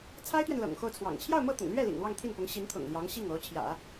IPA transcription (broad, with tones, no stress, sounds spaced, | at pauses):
t͡sʰ a˥ ɪ̯ t̪ ɥ ɛ˨ n l ɤ̰˨˩ ŋ x o˥˩ ʊ̯ t͡sʰ w ɑ̰˨˩ ŋ t͡ɕʰ j ɑ˥˧ ʊ̯ m ɤ˥˩ t̪ ʊ̰˨˩ ŋ l ɥ ɛ˥˩ l ḭ˨˩ ŋ l w ɑ˥˧ ŋ t̪ʰ i˥˩ n p ʊ˧˥ ŋ ɕ i˧˥ n t̪ʰ ʊ̰˨˩ ŋ l j ɑ˧˥ ŋ ɕ i˥˩ ŋ o˧˥ ʊ̯ t͡ɕʰ j ä̰˨˩˦